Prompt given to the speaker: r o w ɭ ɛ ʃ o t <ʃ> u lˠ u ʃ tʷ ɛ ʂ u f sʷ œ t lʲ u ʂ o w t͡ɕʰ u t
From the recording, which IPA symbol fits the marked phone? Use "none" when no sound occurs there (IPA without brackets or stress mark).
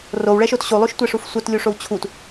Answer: ɕ